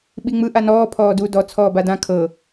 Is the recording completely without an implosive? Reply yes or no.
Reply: no